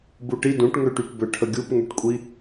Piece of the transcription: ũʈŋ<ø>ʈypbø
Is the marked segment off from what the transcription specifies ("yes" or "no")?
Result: no